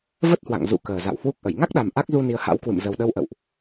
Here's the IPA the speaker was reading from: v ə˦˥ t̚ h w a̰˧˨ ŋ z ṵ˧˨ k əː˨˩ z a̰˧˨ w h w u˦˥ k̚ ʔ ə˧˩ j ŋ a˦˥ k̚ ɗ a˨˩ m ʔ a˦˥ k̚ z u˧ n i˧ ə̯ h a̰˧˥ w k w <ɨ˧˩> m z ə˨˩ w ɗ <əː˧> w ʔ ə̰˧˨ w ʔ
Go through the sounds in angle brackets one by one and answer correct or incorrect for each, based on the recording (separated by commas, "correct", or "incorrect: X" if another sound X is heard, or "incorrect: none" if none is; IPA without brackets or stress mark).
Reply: incorrect: ɨ̰˧˨, incorrect: ə˧